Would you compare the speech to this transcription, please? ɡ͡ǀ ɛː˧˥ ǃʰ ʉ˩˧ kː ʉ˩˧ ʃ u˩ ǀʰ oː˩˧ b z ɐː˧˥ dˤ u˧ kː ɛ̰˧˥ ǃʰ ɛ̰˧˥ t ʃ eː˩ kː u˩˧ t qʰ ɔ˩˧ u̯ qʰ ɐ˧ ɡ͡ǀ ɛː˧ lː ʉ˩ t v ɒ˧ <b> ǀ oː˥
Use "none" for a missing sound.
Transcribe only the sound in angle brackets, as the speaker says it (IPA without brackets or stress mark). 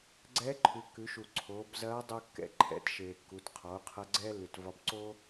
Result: b